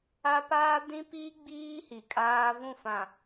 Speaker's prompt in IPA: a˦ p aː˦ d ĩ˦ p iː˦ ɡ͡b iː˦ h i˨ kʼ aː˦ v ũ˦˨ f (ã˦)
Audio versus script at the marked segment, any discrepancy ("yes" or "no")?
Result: yes